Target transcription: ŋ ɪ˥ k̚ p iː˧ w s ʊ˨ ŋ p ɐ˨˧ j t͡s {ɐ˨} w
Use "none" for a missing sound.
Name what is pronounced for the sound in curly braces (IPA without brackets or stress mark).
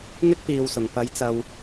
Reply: ɐ˨